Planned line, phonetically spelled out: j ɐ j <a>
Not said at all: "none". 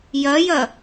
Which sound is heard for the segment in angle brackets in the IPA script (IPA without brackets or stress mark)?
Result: ɐ